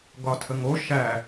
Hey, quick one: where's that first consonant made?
velum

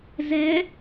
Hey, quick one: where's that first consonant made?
tongue tip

